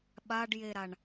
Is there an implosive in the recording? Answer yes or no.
yes